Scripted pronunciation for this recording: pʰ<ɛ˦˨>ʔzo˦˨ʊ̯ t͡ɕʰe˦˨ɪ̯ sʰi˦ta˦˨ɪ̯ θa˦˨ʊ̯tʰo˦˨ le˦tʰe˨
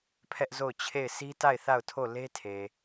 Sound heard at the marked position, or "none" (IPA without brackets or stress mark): ɛ˦